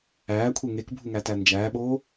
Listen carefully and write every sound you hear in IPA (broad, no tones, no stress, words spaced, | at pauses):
æːkʷʰe ŋekbʱuŋætæ nd͡ʒæːɓoː